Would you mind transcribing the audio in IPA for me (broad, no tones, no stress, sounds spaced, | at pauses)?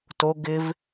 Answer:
t o ɡ ɪ v